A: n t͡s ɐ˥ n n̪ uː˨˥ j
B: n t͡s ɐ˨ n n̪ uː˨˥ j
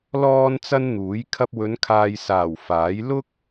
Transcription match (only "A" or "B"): A